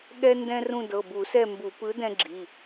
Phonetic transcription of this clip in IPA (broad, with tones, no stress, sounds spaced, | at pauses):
ɠ ɛ˦ n d ɛ̃˦ r ũ˦˨ d ɤ˩˧˩ b u˧˩˧ s ɛ˦˨ m b u˧˩˧ p ɯ˨˥ d ɛ̃˦ ɡ͡ǁ i˩˧˩